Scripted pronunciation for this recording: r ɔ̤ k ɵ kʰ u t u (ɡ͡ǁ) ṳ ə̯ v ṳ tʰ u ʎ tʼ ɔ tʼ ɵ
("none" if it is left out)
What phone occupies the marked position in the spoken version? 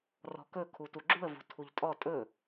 ɡ͡ǁ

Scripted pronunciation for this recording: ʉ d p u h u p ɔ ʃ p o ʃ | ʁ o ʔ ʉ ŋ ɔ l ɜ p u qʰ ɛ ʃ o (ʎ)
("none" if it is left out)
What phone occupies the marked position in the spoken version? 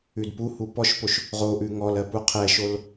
l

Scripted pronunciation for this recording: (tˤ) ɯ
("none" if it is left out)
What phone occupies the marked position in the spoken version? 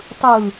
tˤ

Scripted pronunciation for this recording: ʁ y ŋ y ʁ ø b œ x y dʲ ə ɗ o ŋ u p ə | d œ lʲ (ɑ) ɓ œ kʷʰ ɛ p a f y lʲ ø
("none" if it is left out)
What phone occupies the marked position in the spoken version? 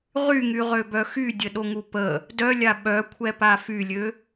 a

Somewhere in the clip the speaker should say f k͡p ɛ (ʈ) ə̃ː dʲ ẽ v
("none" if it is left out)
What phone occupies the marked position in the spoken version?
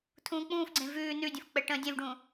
ʈ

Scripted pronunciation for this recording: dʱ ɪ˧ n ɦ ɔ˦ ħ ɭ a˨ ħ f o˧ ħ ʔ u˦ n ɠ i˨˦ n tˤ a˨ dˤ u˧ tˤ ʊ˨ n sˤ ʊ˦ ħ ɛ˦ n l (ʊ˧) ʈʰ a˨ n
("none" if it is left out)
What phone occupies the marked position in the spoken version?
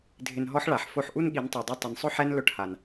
ʊ˧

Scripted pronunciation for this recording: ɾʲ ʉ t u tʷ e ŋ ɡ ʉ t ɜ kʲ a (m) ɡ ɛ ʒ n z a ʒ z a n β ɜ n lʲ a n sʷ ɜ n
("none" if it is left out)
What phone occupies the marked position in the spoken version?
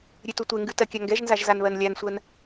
ŋ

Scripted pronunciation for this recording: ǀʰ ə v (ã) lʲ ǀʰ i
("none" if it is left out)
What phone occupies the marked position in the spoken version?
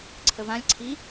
ã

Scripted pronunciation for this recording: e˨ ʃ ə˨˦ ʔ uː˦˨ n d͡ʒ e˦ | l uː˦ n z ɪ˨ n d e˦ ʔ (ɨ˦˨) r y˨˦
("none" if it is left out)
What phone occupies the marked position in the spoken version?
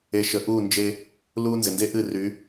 ɨ˦˨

